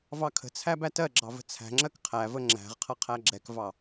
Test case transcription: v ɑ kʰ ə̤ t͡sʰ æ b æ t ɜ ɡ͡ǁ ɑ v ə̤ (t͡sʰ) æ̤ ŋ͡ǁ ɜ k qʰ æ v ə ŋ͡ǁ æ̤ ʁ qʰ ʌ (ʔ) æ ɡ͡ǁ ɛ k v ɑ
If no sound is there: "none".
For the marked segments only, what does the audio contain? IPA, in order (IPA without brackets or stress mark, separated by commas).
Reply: t͡sʰ, qʰ